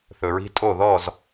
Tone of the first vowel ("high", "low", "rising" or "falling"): low